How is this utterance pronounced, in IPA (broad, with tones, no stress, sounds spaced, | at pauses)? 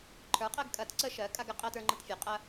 ǃʰ ə˞˩˥ qʼ ɜ˧ ɡ kʼ ɐ˨˩˦ t ǀ ə˧ ʃ ɜ˩˥ kʼ a˧ ɡ ə˩˥ qʼ ɜ˧ t ə˞˧ ŋ͡ǃ ɐ˧ t fʲ ə˞˩˥ qʼ ɐ˧